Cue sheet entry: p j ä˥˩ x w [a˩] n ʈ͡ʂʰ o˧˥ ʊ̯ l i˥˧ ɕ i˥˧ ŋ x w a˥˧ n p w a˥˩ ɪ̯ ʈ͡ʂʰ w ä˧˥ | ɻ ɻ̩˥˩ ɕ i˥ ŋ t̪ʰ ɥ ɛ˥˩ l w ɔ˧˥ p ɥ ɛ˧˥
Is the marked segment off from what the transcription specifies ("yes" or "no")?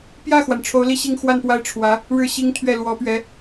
no